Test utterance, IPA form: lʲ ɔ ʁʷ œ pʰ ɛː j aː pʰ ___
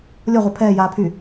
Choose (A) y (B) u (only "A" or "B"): A